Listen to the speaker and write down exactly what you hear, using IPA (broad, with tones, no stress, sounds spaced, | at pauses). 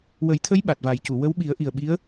w ə˨˩˦ j t̪ʰ ə˧˥ j ɓ a˨˩ t̚ v a˨˩˦ j c u˨˩˨ w ə˧˥ w ɓ i˨˩˦ ə̯ ʔ i˨˩ ə̯ ɓ i˧˥ ə̯